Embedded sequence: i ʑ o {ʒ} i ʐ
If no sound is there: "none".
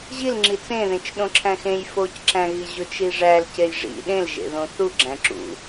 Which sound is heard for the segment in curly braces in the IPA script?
t͡ʃ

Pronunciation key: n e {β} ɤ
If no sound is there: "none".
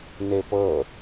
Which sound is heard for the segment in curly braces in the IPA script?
p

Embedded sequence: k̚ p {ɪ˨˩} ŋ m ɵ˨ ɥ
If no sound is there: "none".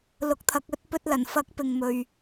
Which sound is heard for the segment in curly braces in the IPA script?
ɪ˨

